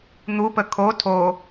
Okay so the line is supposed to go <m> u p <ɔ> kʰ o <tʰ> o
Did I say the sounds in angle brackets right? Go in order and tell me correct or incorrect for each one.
incorrect: n̪, incorrect: ə, correct

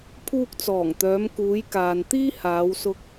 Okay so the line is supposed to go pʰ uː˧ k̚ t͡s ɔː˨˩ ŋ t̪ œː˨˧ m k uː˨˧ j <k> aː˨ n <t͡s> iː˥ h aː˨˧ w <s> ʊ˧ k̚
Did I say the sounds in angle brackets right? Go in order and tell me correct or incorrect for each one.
correct, incorrect: t̪, correct

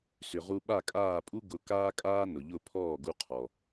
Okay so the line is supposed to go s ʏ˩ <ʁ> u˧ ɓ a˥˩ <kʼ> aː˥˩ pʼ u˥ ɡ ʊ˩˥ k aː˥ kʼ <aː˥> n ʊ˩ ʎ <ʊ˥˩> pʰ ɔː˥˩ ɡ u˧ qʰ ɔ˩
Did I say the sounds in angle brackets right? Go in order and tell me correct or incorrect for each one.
correct, correct, correct, correct

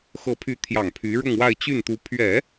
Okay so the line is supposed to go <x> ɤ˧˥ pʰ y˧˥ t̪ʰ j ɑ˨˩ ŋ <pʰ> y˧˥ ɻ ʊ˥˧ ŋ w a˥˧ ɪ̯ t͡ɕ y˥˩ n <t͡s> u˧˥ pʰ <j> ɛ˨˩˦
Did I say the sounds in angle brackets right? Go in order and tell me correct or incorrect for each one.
correct, correct, incorrect: t̪, incorrect: ɥ

